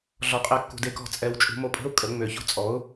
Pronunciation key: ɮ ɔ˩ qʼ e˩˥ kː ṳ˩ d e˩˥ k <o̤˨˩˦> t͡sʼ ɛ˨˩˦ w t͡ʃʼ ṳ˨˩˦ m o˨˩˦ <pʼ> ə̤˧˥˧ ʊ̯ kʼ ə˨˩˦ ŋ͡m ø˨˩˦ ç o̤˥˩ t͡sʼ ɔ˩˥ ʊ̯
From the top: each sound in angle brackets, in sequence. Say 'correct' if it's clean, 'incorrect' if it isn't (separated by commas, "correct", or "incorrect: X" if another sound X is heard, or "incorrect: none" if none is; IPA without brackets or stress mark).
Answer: incorrect: ɔ̤˨˩˦, correct